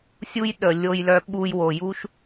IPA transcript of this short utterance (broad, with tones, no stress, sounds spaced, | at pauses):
sʲ u˦ j ɗ ə˨ lʲ o˧ j l œ˧ ɓ u˧ j w o˨ j u˦ ʃ